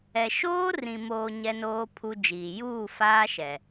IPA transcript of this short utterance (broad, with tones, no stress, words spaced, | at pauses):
ɛ˨ ʃoː˦rĩ˨ moː˨ ɲɛ˦noː˦pʰu˦d͡ʒiː˨ juː˦˨ faː˦ʃɛ˨